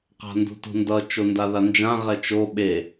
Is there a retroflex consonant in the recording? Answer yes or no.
no